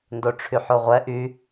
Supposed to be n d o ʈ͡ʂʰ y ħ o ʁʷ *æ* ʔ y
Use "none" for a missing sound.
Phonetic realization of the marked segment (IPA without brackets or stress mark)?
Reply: ɛ